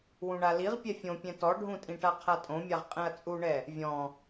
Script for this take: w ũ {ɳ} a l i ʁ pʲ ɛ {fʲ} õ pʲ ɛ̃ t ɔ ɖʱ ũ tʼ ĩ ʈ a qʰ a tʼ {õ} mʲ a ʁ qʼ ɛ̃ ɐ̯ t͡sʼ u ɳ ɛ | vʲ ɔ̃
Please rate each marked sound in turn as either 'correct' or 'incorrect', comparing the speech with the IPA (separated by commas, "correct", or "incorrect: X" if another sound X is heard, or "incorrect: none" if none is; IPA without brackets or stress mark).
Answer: correct, correct, correct